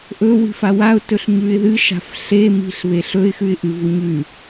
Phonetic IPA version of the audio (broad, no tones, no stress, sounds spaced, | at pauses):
ʔ ɵ w i̤ f a w a ʊ̯ t ɵ ɬ ɲ ʉ ɪ̯ ð ɨ ʃ a̤ f ɬ e m i̤ ɬ β e ɬ ɵ ɪ̯ x ʉ ɪ̯ ʔ ɨ v u ɲ ʉ